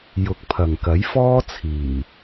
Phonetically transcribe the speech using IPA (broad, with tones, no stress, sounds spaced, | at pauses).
j ʊ˨˥ k̚ pʰ ɐ˨ ŋ k ɐ˨˥ j f ɔː˥ t͡sʰ iː˨˩